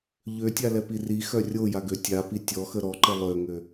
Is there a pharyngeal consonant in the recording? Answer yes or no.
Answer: no